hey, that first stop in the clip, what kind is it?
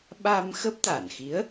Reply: implosive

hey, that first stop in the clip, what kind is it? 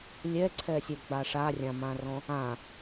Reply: click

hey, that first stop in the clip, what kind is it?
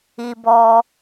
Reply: plain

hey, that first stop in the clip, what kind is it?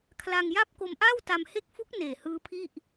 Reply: aspirated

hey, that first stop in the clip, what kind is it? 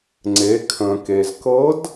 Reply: click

